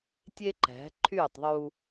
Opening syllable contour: high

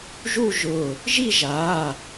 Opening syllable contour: falling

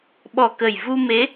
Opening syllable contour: low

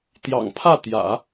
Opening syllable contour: low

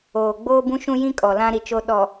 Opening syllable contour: low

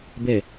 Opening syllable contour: low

